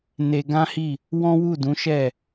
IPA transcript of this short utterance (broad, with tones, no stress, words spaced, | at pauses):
ne˧ ɡã˦hi˦˨ | wɔ̃˦wu˦˨dũ˨˦ʃɛ˦˨